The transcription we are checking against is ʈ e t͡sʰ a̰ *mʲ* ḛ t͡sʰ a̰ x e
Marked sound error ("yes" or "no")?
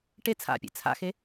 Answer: yes